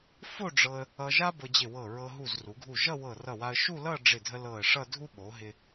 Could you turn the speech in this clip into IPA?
fo˥˧ɖ͡ʐɤ˧ə̯ | ʌ˧ʒa˥ bɤ˧d͡ʑɪ˧˩wɤ˧˩ɹɤ˧ ɦu˧˩zru˩˧ɡʱu˧˩ ʒʌ˥˧wɤ˧˩rʌ˧˩wa˧ə̯ ʃu˥˧lʌ˥˧ ɖ͡ʐɪ˧˩dʱə˧ lɤ˧˩ə̯ʂʌ˥˧dʱu˥ ɓo˩˧ɦɪ˧

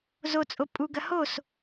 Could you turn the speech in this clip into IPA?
zot͡sʼo pʼuɡɐ hos

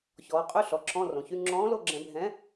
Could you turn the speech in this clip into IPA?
çɔː˩˧qʼø˧˥˧ ɬɔ˩˧ ǁʰɔ̃˧˥˧rõ˩˧çy˧˥˧ ŋ͡ǁɔ̃ː˨˥lo˦˨ɡ͡ǁɛ̃˧˩˧ bʱɛ̃˨˥

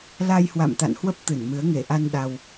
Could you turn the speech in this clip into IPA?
la˧jhwa̰˧˨mt̪a̰˧˨nhwə˦˥p̚ t̪ɨ˧˩nmɨ˨˦ə̯ ŋe˧˩ʔa˧n ɗa˧w

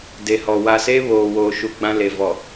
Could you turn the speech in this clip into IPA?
de˨hɔ˨ wa˨seː˦ βoː˨woː˨ʃu˨ ɡ͡bã˦le˨ vɔ˨

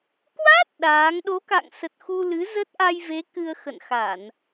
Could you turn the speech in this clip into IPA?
kwa˦˥t̚ ɗaː˨˦ŋ ɗo˨˦ka̰˧˨ŋsə˨˩t̚ xu˧lɨ˨˦zə˦˥t̚ ʔa˧jve˨˦ kɨ˧ə̯xə̰˧˨nxa˧˩˨n

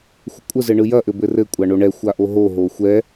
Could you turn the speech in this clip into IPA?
xʷəkʷʼəzɘɳɯ jɐʔɘ bɘrɘ kʷʼaɳoɳɛ xʷaʔoɦo ɦoxʷɛ

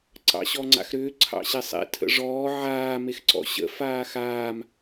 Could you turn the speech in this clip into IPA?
ǀɑ̰ɕɔŋ͡ǀa̰xɾʏː ǀʰɑ̰ɕesˤḛ tʰə̰ʐɔː ʕaː mexǀɔ̰ɕə̰ faːxaːm

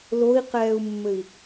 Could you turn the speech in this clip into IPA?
loi̯qɛːu̯mːɘi̯

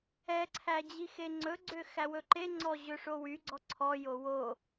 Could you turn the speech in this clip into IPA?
ɛǀʰæ d͡ʑixeŋ͡ǀɵɡ͡ǀø xæwɵǃeŋ͡ǀɔ ʑɵʂowyɡ͡ǀɔ ǀʰɔjo wo

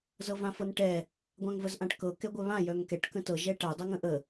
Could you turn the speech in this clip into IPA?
zɤvãfɤnʈɛ | ɡʷãŋvəzʔãʈkɤ kɛɡʷœβã jœŋkɛʈ kə̃tɤ ʒɛʈa dˤɤŋə̃ʔə

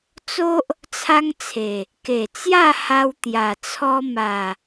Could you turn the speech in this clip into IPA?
t͡so˦ʔ | t͡sʰa˦ŋt͡sʰe˨˩ | ke˨˩t͡sja˥˧ha˧w t̪ja˨˩ t͡sʰɔ˧ma˨˩

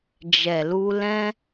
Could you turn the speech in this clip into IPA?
d͡ʒɛ˨lu˧ lɛ̃˦

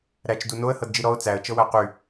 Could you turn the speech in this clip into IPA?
ɾæt͡ʃdu noə̯hɤdd͡ʒi ɾɔʊ̯ t͡sæə̯ t͡ʃɤwæqy

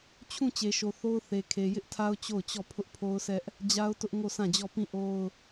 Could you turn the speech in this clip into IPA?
t͡ɕʰũ˦˨ t͡ɕe˨ʃo˨ θo˦ʊ̯θe˨kʰe˨ jɪ˦ʔtʰa˦ʊ̯ t͡ɕo˦˨ʊ̯t͡ɕɔ˦˨ pʰʊ˦ʔpʰo˦ʊ̯sɛ˦ʔ | d͡ʑa˦ʊ̯tʊ˦ʔ ŋo˦˨sã˦˨d͡ʑɔ˦˨ pĩ˦˨ʔo˦ʊ̯

